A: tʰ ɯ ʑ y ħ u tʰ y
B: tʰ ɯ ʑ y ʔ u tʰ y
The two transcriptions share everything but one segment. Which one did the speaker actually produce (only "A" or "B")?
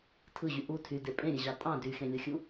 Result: B